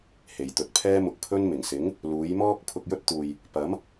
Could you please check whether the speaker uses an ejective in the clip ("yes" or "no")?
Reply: no